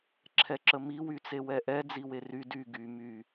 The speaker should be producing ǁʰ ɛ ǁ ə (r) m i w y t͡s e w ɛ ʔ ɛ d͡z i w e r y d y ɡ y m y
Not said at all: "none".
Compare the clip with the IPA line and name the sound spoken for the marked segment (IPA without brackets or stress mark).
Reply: none